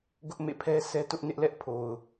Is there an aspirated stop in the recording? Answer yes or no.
yes